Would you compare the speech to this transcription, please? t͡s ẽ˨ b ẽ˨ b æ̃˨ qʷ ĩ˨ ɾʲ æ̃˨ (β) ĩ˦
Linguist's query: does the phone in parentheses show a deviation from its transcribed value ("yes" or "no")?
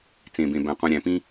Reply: yes